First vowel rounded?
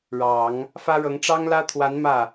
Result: no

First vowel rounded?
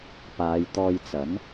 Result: no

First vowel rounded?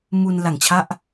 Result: yes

